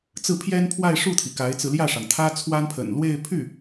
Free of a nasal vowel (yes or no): yes